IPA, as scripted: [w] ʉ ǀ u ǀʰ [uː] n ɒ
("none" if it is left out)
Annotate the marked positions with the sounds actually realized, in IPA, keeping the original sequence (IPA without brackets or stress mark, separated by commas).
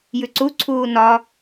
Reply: j, uː